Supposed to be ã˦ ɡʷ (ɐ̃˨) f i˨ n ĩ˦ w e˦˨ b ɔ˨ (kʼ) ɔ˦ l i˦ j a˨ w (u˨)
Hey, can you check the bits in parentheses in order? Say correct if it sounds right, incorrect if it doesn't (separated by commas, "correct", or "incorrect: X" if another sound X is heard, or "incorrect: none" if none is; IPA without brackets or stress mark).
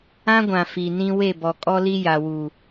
incorrect: ã˨, correct, correct